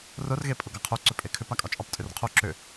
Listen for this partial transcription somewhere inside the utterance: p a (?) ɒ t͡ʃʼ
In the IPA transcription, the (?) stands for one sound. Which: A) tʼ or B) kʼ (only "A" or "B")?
B